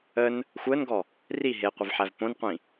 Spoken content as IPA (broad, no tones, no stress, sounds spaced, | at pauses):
ə n | xʷ əː n ɡ ɔ | r i ɦ e qʷ ə v ħ æ v p õ n qʷ ĩ